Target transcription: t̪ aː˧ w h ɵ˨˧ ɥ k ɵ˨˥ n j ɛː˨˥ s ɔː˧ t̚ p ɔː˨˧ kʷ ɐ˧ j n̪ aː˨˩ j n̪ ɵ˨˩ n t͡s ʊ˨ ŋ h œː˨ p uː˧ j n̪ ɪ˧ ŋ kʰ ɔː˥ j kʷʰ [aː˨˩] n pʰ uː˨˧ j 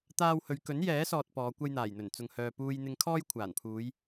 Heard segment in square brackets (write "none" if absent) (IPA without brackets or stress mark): aː˨˩